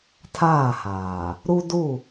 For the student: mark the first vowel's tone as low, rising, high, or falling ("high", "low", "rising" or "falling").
falling